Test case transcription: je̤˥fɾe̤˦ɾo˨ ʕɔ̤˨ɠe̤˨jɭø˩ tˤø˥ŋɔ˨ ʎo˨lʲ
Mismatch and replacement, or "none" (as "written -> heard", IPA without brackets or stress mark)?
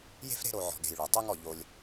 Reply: none